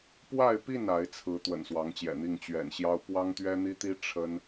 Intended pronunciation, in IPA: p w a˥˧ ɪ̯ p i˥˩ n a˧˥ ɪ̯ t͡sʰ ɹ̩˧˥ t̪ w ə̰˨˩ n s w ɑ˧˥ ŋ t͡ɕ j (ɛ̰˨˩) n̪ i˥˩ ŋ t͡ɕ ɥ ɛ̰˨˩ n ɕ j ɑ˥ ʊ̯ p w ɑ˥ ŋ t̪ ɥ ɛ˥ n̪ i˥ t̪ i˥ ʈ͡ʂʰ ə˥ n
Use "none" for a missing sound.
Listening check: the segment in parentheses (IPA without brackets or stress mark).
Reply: ɛ̰˨˩